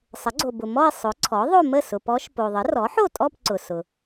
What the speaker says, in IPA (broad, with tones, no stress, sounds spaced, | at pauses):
sˤ ə˩˥ ɡ͡ǀ o˨ b ʊ˨ m ɔ˥˧ i̯ sˤ ʊ˩˥ ǀʰ ɔ˩˥ ðˤ o˥˧ m ə˥˩ s ʊ˨ p ɔ˧˥ ʃ p o˨ ðˤ ə˩˥ r ɔ˩˥ ħ o˥˩ tʼ ɔ˥˧ p ǀ ʊ˨ s ʊ˨